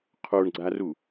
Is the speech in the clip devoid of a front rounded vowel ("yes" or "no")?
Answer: yes